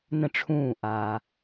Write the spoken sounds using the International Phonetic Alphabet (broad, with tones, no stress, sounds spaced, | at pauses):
n ə̃˧˩ ʈ͡ʂʰ ũː˧˩ ʔ aː˩